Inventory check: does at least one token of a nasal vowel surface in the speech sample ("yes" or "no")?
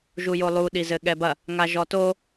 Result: no